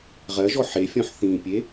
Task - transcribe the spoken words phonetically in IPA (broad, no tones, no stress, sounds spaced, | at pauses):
ʁ ɜ ʒ ɔ ħ e fʲ ɔ̃ ħ θ ĩ pʲ e